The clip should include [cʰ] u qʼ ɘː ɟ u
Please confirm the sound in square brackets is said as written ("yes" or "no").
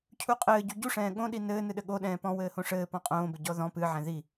yes